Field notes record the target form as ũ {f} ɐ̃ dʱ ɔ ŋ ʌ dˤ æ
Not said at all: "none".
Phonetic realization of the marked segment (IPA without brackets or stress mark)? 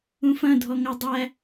f